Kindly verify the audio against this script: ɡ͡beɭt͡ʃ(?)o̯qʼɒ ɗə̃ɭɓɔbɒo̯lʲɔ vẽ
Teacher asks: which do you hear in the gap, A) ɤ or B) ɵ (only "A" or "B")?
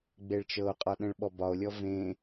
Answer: A